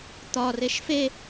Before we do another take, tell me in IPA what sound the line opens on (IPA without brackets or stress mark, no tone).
t̪